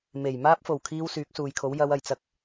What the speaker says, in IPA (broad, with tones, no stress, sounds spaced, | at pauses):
m e˨˩ j m aː˥ p̚ f o˨˩ w kʰ iː˧ w s yː˨˥ k̚ s uː˨ j kʰ o˨˥ w j ɐ˨˧ w ɐ˨˩ j t͡s ɐ˧ k̚